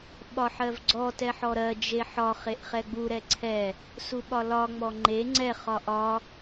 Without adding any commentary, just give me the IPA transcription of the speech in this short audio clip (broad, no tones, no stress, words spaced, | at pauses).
ɓɒħɜvɡ͡ǀɔ tɛħɔɾɜ d͡ʒeħɒ χeʔχɛɡ͡bu ɾɛǀʰɛ | suɓɒlɒ ŋ͡mɔŋ͡ǃe ŋ͡ǀɛ χɒʔɒ